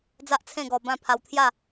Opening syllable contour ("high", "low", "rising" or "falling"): high